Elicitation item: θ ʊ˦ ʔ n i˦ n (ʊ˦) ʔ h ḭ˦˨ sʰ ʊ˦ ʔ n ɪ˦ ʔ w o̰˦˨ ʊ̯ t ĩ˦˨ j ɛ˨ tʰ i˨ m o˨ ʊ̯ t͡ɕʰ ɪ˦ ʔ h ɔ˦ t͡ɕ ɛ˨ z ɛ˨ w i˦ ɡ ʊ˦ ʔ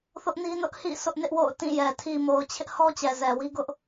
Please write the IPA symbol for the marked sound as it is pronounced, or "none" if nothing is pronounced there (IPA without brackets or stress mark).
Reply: ʊ˦